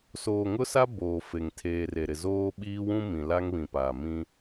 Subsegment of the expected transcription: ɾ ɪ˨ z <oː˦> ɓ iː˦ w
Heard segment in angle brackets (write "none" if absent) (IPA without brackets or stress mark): oː˦